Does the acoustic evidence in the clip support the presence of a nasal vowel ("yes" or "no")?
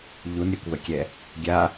no